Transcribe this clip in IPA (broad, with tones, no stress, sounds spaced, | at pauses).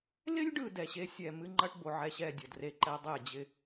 l ɪ˦ lʲ ɖ ɯ˨ d ɛ˨ ɕ e˦ sʲ ɛ˨ m ɨ˦ ŋ͡ǃ ɐ˦ ʈ b o˨ ʕ ɛ˦ ɕ ɛ˦˨ dʲ ɐ˨ d r e˨ ǃ ɛ˦ dˤ e˦˨ d͡ʑ ɪ˦